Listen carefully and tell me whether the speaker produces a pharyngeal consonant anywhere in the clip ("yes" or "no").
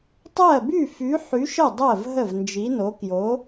yes